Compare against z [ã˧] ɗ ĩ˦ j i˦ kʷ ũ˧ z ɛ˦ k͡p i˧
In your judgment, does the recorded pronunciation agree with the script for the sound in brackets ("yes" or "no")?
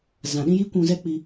no